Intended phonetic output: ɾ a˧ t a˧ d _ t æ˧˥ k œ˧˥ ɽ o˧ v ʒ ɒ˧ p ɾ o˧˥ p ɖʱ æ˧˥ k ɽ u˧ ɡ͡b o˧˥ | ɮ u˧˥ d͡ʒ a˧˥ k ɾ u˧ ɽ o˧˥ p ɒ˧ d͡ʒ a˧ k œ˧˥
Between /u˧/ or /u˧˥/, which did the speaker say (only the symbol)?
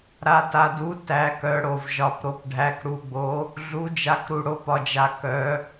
u˧˥